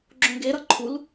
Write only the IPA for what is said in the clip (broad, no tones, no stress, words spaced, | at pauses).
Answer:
ɡ͡ǁõɡeɾʌ ǃʰul